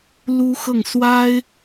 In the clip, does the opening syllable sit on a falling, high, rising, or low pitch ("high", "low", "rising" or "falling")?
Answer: high